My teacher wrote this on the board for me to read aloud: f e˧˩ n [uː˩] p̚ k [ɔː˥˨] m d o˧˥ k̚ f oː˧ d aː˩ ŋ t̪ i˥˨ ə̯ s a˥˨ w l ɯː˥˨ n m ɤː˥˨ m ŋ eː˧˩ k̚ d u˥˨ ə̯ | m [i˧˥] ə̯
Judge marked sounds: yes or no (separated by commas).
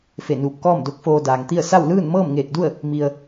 no, yes, no